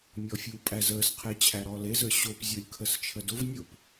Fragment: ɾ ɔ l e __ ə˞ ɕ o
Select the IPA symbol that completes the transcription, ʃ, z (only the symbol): z